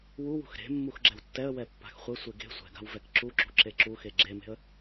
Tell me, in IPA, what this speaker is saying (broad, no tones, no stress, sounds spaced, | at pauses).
w u w ṳ x ɾ e̤ mː u x ɡ͡ǁ ɛ w tː ɛ ə̯ w ɛ pː a̤ x χʷ ɛ sʷ e ɡ e̤ sʷ ɛ̤ ɡ a̤ w v ɛ k ǁ u ǁ ṳ ǁ e ǁ u x e ɡ͡ǁ e m e̤ ə̯